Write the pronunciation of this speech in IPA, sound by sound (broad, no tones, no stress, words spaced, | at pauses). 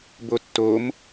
botːom